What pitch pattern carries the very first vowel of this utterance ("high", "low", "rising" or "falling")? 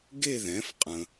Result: falling